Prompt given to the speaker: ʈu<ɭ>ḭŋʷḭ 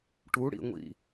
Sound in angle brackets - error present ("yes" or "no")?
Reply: yes